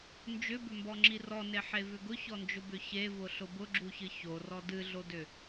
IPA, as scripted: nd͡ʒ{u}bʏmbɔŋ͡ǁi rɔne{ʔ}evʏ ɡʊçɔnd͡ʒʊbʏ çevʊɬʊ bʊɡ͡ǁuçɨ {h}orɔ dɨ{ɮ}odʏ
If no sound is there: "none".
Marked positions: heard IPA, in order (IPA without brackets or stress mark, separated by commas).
ʏ, ħ, ç, ɮ